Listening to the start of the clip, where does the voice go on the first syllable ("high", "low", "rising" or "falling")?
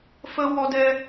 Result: high